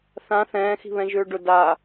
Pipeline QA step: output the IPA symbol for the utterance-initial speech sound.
θ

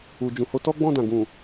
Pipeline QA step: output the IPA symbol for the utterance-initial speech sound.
u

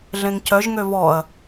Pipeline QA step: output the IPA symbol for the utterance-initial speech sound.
ɮ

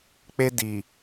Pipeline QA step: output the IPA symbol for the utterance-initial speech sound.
k͡p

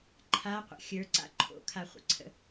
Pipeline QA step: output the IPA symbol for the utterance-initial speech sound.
ǃʰ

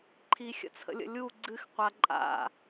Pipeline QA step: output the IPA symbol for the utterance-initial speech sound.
ǃʰ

